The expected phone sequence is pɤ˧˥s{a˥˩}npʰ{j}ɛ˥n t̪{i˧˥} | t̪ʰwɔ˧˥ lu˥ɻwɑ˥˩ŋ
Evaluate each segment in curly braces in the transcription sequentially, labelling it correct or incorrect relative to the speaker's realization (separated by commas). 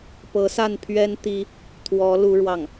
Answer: correct, incorrect, incorrect